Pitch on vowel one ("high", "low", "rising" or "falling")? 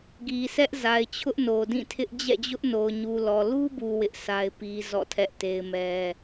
low